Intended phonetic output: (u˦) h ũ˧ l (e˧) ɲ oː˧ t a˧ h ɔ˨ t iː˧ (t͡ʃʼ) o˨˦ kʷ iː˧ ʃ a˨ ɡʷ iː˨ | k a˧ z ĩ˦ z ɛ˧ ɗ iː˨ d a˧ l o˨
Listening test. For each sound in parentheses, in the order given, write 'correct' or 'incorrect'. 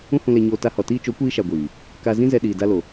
incorrect, correct, incorrect

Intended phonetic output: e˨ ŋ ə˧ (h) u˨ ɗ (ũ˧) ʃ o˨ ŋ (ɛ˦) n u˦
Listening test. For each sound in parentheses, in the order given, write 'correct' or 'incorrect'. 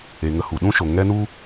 correct, incorrect, correct

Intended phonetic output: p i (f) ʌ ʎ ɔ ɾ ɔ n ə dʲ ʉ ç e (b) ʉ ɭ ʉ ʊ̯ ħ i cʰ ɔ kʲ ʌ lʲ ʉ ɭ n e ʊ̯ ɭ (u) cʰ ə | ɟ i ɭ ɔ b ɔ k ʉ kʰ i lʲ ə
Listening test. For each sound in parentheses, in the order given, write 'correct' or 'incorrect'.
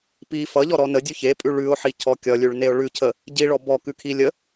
correct, incorrect, incorrect

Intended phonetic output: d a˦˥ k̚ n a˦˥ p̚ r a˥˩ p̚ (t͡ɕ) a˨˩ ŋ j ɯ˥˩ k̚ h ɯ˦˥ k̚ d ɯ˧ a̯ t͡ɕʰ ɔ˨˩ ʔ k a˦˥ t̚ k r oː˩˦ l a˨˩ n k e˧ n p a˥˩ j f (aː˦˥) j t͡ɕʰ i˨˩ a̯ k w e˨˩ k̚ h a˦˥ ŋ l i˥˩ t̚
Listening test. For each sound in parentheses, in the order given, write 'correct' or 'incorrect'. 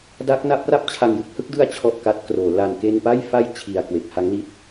incorrect, incorrect

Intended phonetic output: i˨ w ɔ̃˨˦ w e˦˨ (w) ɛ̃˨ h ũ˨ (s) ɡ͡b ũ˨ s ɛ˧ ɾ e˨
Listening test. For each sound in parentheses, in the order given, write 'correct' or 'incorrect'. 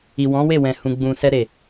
correct, incorrect

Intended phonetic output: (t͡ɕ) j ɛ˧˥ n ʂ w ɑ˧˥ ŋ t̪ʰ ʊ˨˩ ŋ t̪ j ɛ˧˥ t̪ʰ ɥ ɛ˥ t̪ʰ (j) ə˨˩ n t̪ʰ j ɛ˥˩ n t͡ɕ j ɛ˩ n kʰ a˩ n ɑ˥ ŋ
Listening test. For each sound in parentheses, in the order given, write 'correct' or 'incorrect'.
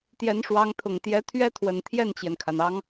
incorrect, incorrect

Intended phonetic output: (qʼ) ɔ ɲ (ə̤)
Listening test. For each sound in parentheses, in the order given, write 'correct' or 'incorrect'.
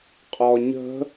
correct, correct

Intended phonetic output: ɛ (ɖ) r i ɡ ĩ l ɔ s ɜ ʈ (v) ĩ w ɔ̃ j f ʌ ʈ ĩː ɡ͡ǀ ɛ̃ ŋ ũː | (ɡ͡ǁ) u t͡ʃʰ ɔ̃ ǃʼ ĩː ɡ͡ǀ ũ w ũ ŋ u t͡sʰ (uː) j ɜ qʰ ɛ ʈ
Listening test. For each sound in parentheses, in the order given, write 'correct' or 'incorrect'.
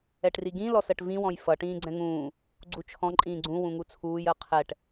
incorrect, correct, incorrect, correct

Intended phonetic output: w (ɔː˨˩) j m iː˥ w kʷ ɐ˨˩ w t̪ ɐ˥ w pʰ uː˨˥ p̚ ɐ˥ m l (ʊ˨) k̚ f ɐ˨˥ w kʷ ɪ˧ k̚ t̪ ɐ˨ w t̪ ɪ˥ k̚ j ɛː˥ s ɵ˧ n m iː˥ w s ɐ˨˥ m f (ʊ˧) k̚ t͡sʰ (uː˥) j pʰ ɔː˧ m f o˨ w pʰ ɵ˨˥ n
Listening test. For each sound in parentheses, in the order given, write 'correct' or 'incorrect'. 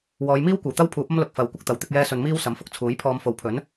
incorrect, correct, correct, incorrect

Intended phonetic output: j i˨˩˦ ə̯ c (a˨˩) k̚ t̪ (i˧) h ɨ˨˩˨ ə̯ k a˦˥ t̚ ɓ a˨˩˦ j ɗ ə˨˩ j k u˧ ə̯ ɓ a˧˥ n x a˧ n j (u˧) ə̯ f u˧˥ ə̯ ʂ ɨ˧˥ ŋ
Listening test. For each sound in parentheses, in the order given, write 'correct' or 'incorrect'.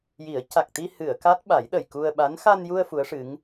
correct, correct, correct

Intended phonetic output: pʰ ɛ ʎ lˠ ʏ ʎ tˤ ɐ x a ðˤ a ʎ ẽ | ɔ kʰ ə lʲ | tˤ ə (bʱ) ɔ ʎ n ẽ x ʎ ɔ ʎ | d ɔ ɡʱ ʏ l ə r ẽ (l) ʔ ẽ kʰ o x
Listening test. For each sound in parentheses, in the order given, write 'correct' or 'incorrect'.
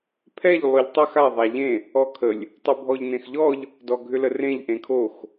correct, incorrect

